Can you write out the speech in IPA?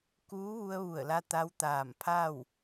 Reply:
kuː˧˥ ʋu˧ə̯ʋu˧˩ə̯la˧ t̪a˧˥wt̪aː˧˩mpʰa˥˨w

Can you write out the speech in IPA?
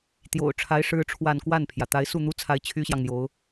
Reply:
t̪jo̰˨˩ʊ̯ʈ͡ʂʰa˧˥ɪ̯ ʂɻ̩˥ʈ͡ʂʰwa˥˧n kwa˥˩npʰjä˩ t̪a˧˥ɪ̯su˥˩n̪u˥t͡sʰa˧˥ɪ̯ t͡ɕʰy˥ɕjɑ˨ŋn̪jo˧˥ʊ̯

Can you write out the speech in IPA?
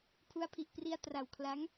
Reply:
pʰu˦˥a̯pʰi˨˩ʔpri˧a̯ tra˨˩wkʰla˦˥ŋ

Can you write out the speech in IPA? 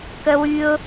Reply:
kəwyʊ̯

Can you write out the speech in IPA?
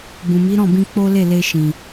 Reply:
bũ˨mi˨˦ɾɔ̃˦˨bĩ˧ k͡po˦le˦˨ le˧ʃĩ˨

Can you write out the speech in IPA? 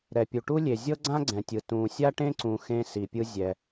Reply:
ɾɛ˩pʲu˩ʈu˥ lʲe˩ zʲɤ˥ɡ͡ǀã˥ɡ͡ǀɛ̃˩tʲɯ˩ tũː˩sʲa˥ʈẽ˥ǀũ˩ xẽ˥ si˩pʲɯ˥ zʲɛ˩

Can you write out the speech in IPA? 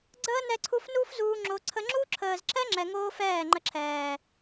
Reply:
ɡ͡ǀəː˦ nɛ˧ǀʰu˧f nuː˦fzuː˧ ŋ͡ǁo˧ǀʰə˦ ŋ͡ǁu˦ǁʰəː˨zǁɛ˦ŋ͡ǁɛ˨ ŋoː˦fɛː˦˨ŋ͡ǃə˧ ǁʰɛː˨

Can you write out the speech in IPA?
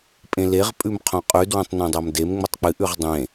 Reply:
pʼẽleʁ pʼʉmqʰõqʼʉ dwõtˤnõdˤamdem ŋ͡mɵtˤk͡pɨ ʔʉʁdˤẽ

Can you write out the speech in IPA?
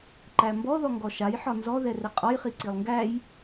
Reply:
ǃæmbɔ ðɔŋɡɔʃaj ħɒnzɔ ðɛrɛqʼɒj χiǀilˠŋɡæj

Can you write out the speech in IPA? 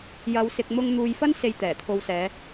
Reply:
jɐ˨˧wsɪ˨k̚ mʊ˥ŋ n̪uː˨jfɐ˥n se˨j t̪ɛː˨˩t̪ʰo˨wsɛː˨˧

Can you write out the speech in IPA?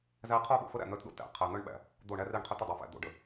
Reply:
zæ˦ qʰo˦ɓo̰˨fə˦ɾæ̰˨ n̪œ˦tɗo̰˦tæ̰˨ qʰæ˨n̪œ˦ɳɓæ̰˨ | d̪o˦˨ɳæ˦re˦˨ɳqʰœ˦t ə˨dˤæ˨fæ̰˨ d̪o̰˨ ɖə˨

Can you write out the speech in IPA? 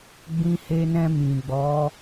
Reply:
ɡ͡bĩ˧he˧nɛ̃˧ mĩ˨ɡ͡bɔ˨˦

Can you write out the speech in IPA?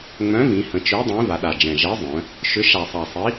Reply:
ŋ͡mœ̃˨˥vĩ˩˧hə̃˩˧t͡ʃø˨˥ dˤĩ˨˥va˩˧ɗa˨˩d͡ʒɛ̃˨˩ ʒɛ˨˥zˤœ̃˩˧ | ʃʏ˨˥ ʃa˨˩sˤa˨˩ sˤi˨˥

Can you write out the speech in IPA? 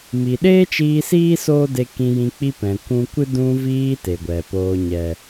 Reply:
mi˨ɗeː˦t͡ʃiː˧ siː˦ soː˦de˧ kĩ˧jĩ˧ k͡pi˧pɛ̃˨ kʷũ˧kʷɨ˦ dũ˧viː˧ te˨ɡʷɛ˨poː˧ ɲɛ˨

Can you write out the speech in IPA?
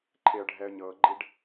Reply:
ǃʰeə̯ɖʱɛə̯ɲɤɡ͡ǃiɖ

